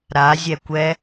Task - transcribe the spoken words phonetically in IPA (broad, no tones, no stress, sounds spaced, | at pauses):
ɾ a zʲ ɛ kʷ ɛ